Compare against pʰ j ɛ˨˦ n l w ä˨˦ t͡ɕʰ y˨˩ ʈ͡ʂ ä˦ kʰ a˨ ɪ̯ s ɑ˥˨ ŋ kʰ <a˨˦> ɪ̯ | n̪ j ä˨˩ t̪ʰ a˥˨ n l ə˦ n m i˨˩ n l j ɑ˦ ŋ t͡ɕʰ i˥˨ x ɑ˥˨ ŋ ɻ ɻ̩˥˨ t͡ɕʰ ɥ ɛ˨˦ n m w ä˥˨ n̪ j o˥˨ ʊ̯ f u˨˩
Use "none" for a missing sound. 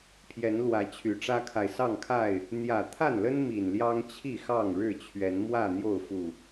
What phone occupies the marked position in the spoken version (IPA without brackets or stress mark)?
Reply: a˥˨